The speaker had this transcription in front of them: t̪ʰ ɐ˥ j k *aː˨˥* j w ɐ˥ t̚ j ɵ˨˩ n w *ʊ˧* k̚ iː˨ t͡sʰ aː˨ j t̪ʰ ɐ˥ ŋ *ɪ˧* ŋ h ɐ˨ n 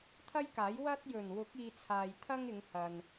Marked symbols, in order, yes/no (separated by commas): yes, no, no